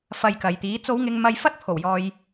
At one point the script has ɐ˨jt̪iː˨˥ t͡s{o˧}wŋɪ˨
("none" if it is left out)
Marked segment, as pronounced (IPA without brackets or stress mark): o˨˧